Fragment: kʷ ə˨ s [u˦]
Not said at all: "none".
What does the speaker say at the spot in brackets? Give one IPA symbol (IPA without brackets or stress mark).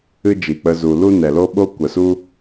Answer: u˦